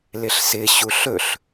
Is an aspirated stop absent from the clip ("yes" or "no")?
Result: yes